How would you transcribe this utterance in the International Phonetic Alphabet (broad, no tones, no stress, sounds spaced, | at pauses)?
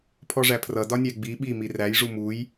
pʰ ɔ ʐ æ pʰ r ʌ d ɒ nʲ æ ɡ͡b i ɓ i m i r æ j ʐ u m u j